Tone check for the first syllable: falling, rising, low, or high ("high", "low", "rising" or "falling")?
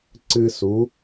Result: high